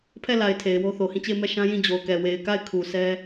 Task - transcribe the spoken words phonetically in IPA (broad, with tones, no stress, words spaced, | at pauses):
pʰɛ˦˨la˨ɪ̯ tʰe˨ɪ̯wo˦θo˨hĩ˦˨ t͡ɕe˦˨ɪ̯mɛ˦˨ʃã˦ jĩ˦˨d͡ʑo˨ʊ̯kɛ˨ we˨ɪ̯ka˦˨ɪ̯ kʰu˨sɛ˦